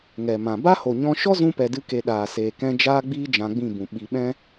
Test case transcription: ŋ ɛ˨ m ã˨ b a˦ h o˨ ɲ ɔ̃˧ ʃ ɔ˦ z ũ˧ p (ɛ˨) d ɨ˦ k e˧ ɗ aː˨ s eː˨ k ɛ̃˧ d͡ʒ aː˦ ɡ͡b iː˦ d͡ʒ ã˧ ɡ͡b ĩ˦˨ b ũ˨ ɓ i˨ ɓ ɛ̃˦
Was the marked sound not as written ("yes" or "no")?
no